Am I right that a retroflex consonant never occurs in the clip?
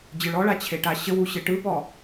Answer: no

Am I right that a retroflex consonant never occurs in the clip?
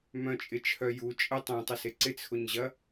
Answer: yes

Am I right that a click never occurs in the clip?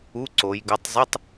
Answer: no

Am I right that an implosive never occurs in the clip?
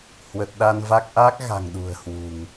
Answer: no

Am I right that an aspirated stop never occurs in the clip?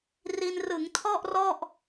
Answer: no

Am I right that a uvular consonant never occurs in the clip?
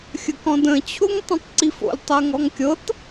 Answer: yes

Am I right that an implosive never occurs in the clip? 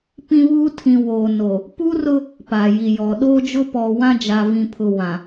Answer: no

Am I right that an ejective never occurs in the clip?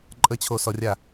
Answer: no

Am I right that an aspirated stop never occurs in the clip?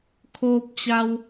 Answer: no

